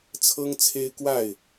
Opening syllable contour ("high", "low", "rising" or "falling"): high